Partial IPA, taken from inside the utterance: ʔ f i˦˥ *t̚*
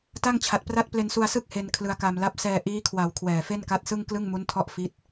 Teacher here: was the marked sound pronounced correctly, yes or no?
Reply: yes